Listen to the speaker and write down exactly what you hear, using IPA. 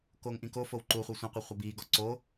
koːŋʔĩkofow ǃuχʷe sʷɛ̃qʷe χʷabiːɡɔ ǀo

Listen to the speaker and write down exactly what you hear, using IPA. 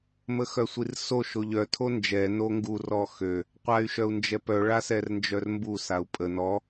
məxœsʷirso ʃoʎœ tʰond͡ʒɛ noŋɡu rɔxø | qʷay̯ʃœu̯nd͡ʒɛpœ ɭasɛrnd͡ʒœrmbu sau̯pʼə nɔ

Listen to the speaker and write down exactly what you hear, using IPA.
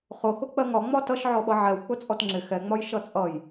χʊxʊ k͡pɜŋɒ ŋ͡mɒtʌʃ ʕɔɓʌʕɛw k͡pʊt͡sʼɔtŋ͡ǁɪ xɛŋ͡mɒj ʃʌt͡sʼʌj

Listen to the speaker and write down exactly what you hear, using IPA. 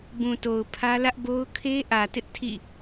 bũ˨to˨ʊ̯ pʰä˦ lä˦ʔbo˦ʊ̯ kʰe˦ʔä˨tɪ˦ʔ tʰḭ˦˨

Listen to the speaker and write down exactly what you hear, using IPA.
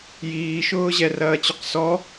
jiːʃʊːʑɛ rɐːt͡ɕʏqsɔ

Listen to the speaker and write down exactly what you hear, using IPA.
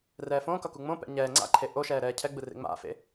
rɛːfõːkʌ kuŋ͡mõpɛ̰ ɲɛː ŋ͡ǀa̰ǃʰe ʔoʃɛː ɾɛːcʰɛɡ͡bɯ rḛŋ͡ma̰fḛ

